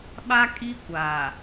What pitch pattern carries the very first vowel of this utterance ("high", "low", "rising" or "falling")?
high